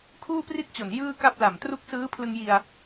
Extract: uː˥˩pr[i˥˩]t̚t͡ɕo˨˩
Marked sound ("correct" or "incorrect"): correct